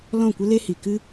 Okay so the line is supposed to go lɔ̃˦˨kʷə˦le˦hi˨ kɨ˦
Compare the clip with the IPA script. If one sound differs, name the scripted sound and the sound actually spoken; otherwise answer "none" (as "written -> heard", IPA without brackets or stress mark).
none